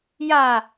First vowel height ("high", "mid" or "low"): low